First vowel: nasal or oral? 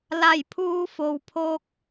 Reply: oral